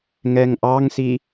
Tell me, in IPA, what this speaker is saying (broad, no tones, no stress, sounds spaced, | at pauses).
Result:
ŋ ɛ ŋ ʔ ɑ ŋ s i